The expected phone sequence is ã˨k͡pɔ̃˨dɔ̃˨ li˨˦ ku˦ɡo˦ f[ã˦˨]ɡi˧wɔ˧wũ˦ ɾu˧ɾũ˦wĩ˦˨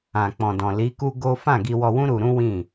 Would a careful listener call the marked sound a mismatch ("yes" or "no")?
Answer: no